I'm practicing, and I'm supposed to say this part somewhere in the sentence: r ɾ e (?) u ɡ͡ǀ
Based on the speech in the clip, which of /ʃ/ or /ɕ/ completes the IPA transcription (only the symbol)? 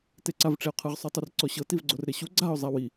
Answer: ɕ